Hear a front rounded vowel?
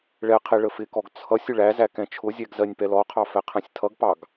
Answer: no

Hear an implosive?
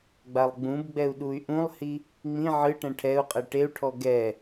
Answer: yes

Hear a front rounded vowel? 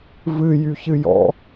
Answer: yes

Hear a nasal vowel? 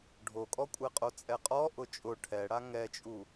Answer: no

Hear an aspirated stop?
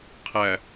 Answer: yes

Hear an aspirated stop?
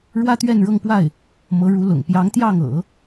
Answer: no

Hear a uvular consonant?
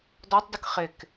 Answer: yes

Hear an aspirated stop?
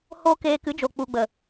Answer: no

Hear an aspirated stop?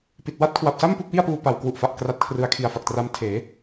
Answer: yes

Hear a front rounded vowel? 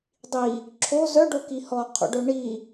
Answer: yes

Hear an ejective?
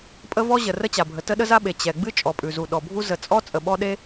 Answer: yes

